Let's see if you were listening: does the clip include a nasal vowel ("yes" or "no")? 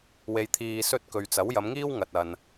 no